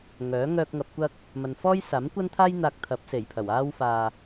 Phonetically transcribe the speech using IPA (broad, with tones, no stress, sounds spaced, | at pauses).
ŋ œː˨˥ ŋ œː˧ k̚ ŋ ɐ˨ p̚ kʷ ɐ˧ k̚ | m ɐ˨ n f ɔː˥ j s aː˨˥ m kʷ ɐ˥ n t̪ʰ aː˥ j n̪ aː˧ k̚ t̪ʰ ɐ˨˥ p̚ s e˨˩ j pʰ ɐ˨˩ w aː˥ w f aː˧